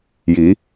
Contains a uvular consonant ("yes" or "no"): no